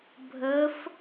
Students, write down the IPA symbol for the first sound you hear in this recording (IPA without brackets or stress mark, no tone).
bʱ